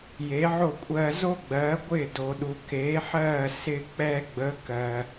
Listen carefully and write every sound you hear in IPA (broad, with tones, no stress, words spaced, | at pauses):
je˩˥ʕo˥˩kʷʼɜː˧ zo˥ɡ͡bɜː˩˥ɡʷɪː˥˩ do˩ɗu˩ keː˩˥ ħɜː˥˩sɪː˧ k͡pɛː˧ɡ͡bə˩˥ kɜ˩